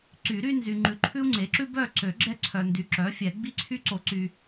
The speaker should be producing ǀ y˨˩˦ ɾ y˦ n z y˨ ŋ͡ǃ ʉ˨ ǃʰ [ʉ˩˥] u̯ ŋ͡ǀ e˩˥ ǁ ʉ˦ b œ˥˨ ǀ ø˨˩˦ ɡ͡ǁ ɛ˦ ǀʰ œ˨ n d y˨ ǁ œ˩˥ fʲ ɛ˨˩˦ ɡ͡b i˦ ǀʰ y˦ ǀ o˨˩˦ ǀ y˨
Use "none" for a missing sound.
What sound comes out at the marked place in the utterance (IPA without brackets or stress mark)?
ʉ˦